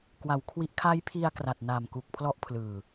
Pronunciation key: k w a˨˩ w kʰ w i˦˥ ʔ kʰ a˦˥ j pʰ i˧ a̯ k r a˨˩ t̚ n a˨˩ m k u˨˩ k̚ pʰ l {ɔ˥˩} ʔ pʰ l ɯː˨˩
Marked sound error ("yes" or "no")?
yes